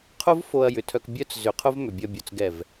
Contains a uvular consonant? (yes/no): yes